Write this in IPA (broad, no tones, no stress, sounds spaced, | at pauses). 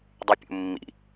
dˤ y pʲ ṵ mː ḭ